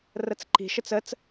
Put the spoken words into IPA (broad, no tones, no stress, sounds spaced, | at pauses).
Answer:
r ə t͡s ǃ i̤ ʃ ə t͡s ə t͡s